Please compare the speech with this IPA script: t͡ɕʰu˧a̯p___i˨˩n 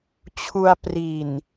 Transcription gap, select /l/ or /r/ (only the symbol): r